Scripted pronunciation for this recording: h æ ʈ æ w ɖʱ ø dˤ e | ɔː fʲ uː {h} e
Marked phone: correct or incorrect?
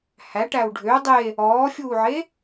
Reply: incorrect